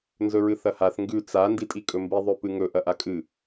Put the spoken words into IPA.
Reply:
n z ɵ ɹ ɨ θ ɐ h a θ ŋ ɡ ʉ t͡s a n d i tʼ i kʼ ɵ m b i ðˤ ʉ p ɨ ŋ ɵ ʔ ɐ ʔ a kʼ ɨ

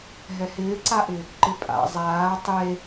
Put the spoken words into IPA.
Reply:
ɦ ɛ h ɪː ǀ a ʔ ɪ | ǃ ɪ pʼ a̰ zˤ aː tˤ e

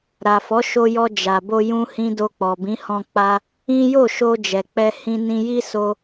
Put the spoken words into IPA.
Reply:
ɾ a˨ f ɔ˨˦ ʃ o˧ j ɔ˧ d͡ʒ a˨ b o˧ j ũ˧ h ĩ˧ d o˧ k͡p ɔ˨ b ĩ˨˦ h ɔ̃˧ k͡p a˧ | ĩ˦ j o˦˨ ʃ o˧ d͡ʒ ɛ˨ k͡p ɛ˧ h ĩ˧ n ĩ˧ j i˦ s o˧

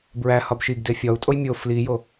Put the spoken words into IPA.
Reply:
b ɹ æ h ɒ b ʃ i ɡ d e fʲ ɒ u̯ tʼ o j mʲ o f l i j o

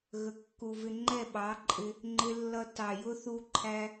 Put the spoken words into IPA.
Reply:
ɣ ə˨ kː u˨ v ɪ˧ ŋ͡ǃ ɛ˦˨ ɓ ɑ˨˦ ǃʼ ɪ˧ | ŋ͡ǃ ɪ˧ lː ʌ˧ t ɑ˨ j ʊ˦ θ u˧ ǃʰ æ˧

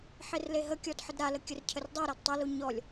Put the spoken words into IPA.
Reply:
ħ e r l e ɦ ə kʲ ɔ d ħ ə d ɾ a l ə kʲ ə r cʰ ə r dˤ u ɾ æ d tˤ ə l u ɲ ɔ lʲ

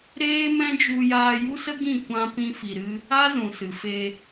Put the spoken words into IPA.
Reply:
ɾ eː˦ m ɛ̃˦ d͡ʒ u˧ j aː˧ j u˦ s ə˦ ɡ ĩ˦˨ kʷ ã˧ p ĩ˧ f i˨ ɾ ɨ˧ | a˦ z ũ˨ s ɨ˨ f e˧

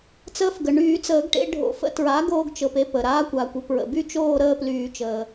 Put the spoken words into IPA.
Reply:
t͡s əː˧ f ɡ ə˩ ɳ yː˨˩˦ t͡s əː˨˩˦ ɡ ʈ ḛ˧ ɖʱ o̰˨˩˦ f ə̰˧ t ɹ a˩˥ ɡ oː˧ ɡ t͡ʃ ɤ˩ p e˧ p ə˩ ɾ aː˧ kʷ aː˩ kʷ ə˥˨ p ɹ ə̰˩ b y˥˨ t͡ʃ oː˥˨ ɾ əː˥˨ p l yː˨˩˦ t͡ʃ əː˩

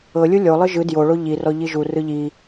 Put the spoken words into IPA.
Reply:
ɤ lʲ u lʲ o lˠ ɯ ʒ ɯ d j o ɭ o ʎ i r ɔ ʎ i ʒ u r ɯ ʎ i

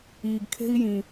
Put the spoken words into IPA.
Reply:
iː˩ ɡ kʰ e̤˥ i̯ j ĩ˩

